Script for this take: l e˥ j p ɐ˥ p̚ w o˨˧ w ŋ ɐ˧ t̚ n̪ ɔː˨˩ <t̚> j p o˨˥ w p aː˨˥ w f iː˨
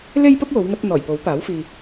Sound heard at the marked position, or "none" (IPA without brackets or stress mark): none